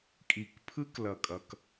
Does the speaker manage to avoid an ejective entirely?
no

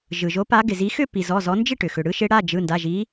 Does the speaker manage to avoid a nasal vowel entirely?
yes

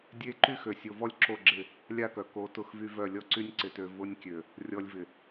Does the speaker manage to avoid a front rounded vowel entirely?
no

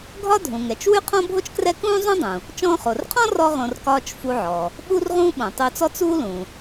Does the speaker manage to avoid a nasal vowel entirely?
no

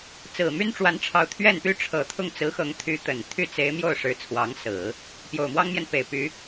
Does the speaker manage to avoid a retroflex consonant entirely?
no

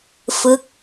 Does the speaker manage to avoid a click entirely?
yes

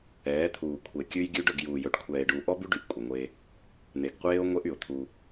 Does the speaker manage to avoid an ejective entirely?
no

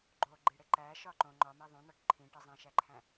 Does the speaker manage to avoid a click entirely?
no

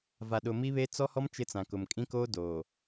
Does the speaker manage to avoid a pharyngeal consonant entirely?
yes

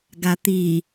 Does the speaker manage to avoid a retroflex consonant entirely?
yes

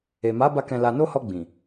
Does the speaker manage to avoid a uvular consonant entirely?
yes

